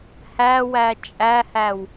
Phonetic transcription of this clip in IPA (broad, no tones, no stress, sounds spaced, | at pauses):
h æ w æ t͡ʃʼ æ h æ w